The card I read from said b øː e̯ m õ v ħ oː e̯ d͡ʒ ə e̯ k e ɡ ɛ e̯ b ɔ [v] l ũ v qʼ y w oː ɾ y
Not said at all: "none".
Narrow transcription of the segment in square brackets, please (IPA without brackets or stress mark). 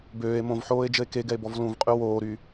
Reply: v